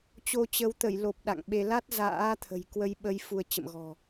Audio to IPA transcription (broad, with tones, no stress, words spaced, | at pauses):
t͡ɕo˧t͡ɕə˨˦w t̪ə˧˩jlo˨˩p̚ ɗa̰˧˨ŋɓe˧ la˦˥t̚za̰ː˧˥t̪ʰə̤˨˩j kwə˧jɓə˧j fu˧ə̯t͡ɕə̰˧˨mɣɔ̤˨˩